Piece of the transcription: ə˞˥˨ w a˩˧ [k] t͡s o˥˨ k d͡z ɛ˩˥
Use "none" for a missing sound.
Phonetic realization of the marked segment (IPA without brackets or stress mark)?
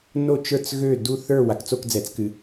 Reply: k